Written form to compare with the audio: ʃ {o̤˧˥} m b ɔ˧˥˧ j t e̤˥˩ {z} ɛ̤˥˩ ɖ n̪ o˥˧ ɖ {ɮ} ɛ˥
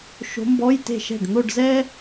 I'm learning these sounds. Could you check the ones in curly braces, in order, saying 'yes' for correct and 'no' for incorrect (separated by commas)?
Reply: yes, no, no